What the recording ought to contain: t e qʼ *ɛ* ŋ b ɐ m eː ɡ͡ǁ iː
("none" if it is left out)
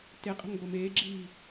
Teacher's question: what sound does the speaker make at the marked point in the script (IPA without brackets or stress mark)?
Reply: ɛ̤